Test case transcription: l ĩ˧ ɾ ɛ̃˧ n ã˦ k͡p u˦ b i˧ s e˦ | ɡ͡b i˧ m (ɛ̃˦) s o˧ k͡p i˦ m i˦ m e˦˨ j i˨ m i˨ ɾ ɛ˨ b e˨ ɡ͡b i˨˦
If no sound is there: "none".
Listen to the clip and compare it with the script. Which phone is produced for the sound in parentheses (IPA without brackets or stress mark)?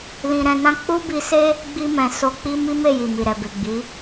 ɛ̃˨